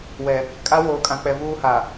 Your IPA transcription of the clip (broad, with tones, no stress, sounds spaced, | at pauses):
w ɛ˨ | kʼ a˦ w oː˨ kʼ ã˨ k͡p ɛ˨ v uː˦ h a˨